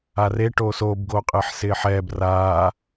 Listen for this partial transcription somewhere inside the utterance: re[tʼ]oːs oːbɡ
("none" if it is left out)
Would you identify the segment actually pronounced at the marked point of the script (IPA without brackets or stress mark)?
ʈ